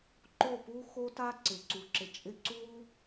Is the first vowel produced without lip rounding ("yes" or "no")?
no